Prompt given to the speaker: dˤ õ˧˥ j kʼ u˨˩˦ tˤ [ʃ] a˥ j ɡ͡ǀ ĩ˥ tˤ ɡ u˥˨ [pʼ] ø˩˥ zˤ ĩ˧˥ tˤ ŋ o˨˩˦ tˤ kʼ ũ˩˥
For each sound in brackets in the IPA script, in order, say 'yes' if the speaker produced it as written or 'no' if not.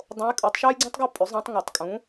yes, yes

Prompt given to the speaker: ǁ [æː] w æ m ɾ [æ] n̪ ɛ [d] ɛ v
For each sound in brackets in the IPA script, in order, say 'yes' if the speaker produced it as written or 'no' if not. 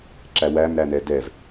no, yes, yes

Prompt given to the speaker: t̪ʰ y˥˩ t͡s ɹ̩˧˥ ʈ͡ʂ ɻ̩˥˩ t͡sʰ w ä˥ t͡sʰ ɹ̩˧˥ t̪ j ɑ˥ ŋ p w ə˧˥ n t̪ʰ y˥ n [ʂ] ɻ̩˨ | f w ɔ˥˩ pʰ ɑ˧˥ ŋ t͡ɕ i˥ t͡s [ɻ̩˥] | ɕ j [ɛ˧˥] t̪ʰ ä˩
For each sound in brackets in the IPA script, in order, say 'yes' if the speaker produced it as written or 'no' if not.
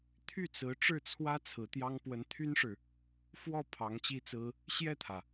yes, no, no

